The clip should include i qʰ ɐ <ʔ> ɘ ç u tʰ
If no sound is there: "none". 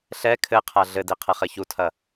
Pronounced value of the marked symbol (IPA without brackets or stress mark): χ